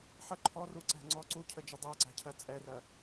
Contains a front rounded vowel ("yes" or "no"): no